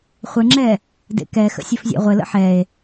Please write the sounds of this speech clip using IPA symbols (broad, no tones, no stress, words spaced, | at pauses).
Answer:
χʷɘŋ͡ǁɛ | dḛkɛxə̰ sʲɘfzʲḛʁʷɘlə̰ ħɛe̯